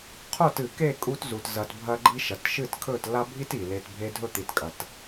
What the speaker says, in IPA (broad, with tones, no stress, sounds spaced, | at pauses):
qʰ o˦˨ t ɨ˨ k e˦˨ kʼ u˧ t z u˨ t z ɐ˧ t bʱ ɐ˦ ɡ͡ǃ i˦ ʃ ɐ˨ t ʃ ɨ˦˨ t kʰ ɵ˦˨ t l a˦ bʱ i˦ t i˨ l e˧ t bʱ e˦ dʱ ɵ˦ t̪ i˧ t kʼ ɐ˧ t